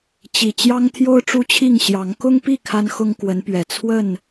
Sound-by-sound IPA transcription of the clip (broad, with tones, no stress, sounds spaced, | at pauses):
t͡ɕ i˨˩ t͡ɕ j ɑ˦ ŋ t̪ʰ j o˦ ʊ̯ ʈ͡ʂ u˦ t͡ɕʰ i˥˨ ŋ ɕ j ɑ˨˦ ŋ k ʊ˦ ŋ p i˥˨ kʰ a˦ n x ʊ˦ ŋ k w ə˨˦ n p ɥ ɛ˨˩ t͡sʰ w ə˥˨ n